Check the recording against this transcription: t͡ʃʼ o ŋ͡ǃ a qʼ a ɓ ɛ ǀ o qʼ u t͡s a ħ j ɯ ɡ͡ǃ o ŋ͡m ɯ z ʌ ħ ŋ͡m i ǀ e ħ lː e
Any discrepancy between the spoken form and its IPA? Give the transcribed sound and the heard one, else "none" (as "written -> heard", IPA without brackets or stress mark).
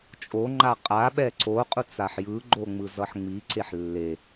none